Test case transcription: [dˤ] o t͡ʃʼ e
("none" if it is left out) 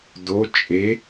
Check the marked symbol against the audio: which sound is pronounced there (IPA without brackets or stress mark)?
d